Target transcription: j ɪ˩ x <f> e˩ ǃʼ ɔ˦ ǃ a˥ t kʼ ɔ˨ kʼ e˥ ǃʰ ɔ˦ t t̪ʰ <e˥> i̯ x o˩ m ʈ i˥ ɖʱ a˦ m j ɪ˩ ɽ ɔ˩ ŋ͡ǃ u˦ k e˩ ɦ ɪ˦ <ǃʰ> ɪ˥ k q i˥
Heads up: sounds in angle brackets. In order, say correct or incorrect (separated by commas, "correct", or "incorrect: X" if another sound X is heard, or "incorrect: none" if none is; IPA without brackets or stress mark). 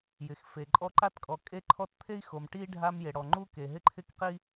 correct, correct, correct